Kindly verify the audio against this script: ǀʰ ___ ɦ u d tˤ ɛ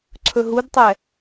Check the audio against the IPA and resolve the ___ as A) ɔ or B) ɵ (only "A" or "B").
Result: B